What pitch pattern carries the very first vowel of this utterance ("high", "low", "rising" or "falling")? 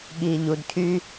low